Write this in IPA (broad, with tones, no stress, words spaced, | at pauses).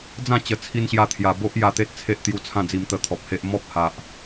d͡zã˥˧t͡ɕə˨˩ t͡sʰi˧nɕja˧t̪ʰja˨˩ bo˦ʔ ja˧t̪e˦t̚t͡sʰe˦ʔt̪ju˧ t͡sʰã˥˧d͡zi˧m t̪ə˧t̪ʰɔ˨p̚ he˦ʔ mɔ˦p̚ha˨ʔ